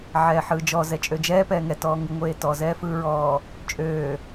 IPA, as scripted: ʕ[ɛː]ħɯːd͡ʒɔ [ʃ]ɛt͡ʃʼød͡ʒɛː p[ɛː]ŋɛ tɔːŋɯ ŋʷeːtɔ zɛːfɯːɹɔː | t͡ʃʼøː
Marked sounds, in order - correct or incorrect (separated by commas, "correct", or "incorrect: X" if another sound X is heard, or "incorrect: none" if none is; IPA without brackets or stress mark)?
correct, incorrect: z, correct